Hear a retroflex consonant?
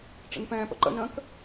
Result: yes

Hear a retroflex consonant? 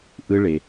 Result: yes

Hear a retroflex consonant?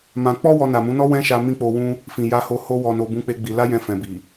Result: no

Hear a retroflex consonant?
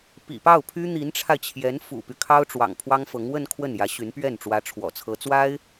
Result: yes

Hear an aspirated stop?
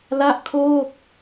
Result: yes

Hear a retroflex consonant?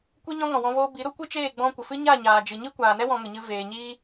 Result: no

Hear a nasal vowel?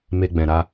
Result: yes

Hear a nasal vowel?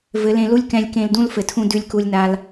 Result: yes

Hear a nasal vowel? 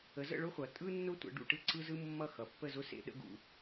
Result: no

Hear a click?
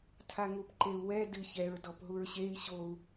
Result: yes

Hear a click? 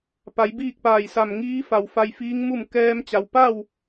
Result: no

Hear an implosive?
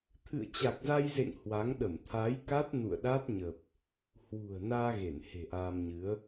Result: yes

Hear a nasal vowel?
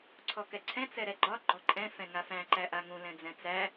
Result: yes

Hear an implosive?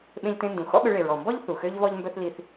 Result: yes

